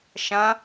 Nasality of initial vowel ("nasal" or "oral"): nasal